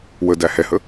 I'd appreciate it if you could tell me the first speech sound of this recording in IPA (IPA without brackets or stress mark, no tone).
w